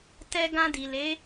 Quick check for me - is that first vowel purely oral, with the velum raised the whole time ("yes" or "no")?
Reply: yes